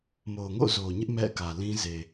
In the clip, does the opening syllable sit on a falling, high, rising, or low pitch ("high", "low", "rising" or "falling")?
low